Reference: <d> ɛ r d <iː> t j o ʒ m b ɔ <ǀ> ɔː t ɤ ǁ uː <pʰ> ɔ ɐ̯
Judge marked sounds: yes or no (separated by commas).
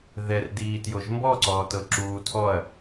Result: no, yes, yes, no